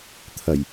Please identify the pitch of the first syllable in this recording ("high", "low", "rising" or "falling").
low